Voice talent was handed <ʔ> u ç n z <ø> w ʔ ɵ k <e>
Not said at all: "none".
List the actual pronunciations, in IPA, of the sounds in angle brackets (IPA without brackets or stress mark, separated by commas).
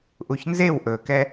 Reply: ʔ, e, ɛ